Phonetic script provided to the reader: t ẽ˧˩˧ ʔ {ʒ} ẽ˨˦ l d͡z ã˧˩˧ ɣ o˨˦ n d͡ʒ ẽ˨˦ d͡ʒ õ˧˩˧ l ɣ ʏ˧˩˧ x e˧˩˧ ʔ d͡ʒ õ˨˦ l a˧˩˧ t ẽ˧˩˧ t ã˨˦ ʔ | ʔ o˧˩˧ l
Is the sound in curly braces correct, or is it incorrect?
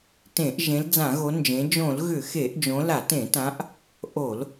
correct